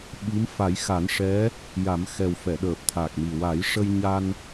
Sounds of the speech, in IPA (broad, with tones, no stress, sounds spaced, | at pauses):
ɓ i˧˥ m f a˨˩˦ j x a˨˩˦ n ʂ ɛ˧˥ | j a˨˩˦ m x ɛ˨˩ w f ɛ˨˩˨ ɗ əː˨˩ p̚ t̪ʰ a˨˩ k̚ m i˨˩ w a˨˩˦ j ʂ ə˧ j ɲ a˧ n